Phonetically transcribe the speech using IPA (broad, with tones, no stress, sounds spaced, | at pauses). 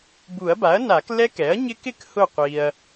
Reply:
b u˨˩˦ ɐ̯ b a˩˥ ɐ̯ n a˨˩˦ k l ɛ˦˥ k ɛ˩˥ ɐ̯ ɲ ɪ˦˥ k ɪ˥˨ k h ʊ˥˨ qʷ i˨ ɐ̯